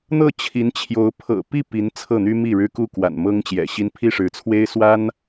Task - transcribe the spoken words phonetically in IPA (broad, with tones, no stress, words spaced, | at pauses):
n̪ɤ˥˩t͡ɕʰi˧˥nt͡ɕʰjo˧˥ʊ̯ pʰɤ̰˨˩pi˥˩ pi˧˥n t͡sʰɤ˥˩n̪y˥mi˥˩ ɻɻ̩˥ku˥˩kwa̰˨˩n mɤ˥ŋt͡ɕjɛ̰˨˩ɕi˥n pʰi˥˩ʂɻ̩˧˥t͡sʰwe˥ɪ̯ swa˥n